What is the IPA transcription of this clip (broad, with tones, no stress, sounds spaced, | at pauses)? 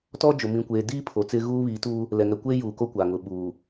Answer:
t ɔ˦ d͡ʒ ʊ˨ m ĩ˨ kʷ eː˨ d iː˦ pʰ o˨ t͡s ɪ˦ ɣ uː˦ β iː˨˦ t uː˦ | l ɛ˨ ŋ ɛ˨ kʷ eː˦ j uː˨ k o˦ kʷ a˨ ŋ ʊ˨ ɓ uː˨